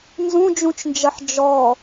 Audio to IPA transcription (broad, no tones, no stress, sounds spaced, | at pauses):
n z ũ d͡ʒ ũ t͡ʃ n d͡ʒ ɐ ħ d͡ʒ ɔ